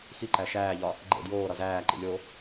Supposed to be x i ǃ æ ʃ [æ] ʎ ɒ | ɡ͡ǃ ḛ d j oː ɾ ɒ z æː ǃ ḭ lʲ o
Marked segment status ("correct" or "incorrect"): incorrect